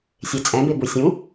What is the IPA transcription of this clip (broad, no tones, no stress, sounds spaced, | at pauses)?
sʲ e t͡sʼ ɛ̃ b e b u sʲ ũ